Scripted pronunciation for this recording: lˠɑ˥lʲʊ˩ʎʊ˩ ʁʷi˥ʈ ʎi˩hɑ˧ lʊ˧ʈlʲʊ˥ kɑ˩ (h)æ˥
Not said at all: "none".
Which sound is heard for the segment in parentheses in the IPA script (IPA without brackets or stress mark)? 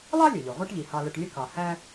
h